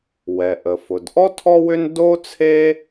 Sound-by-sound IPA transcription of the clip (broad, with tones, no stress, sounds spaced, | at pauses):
w ɛ˩ ʔ ə˩ f ʊ˩ d ʔ ɔ˥ tʰ ɔ˥ w ʏ˥ n d o˥ t͡sʰ e˥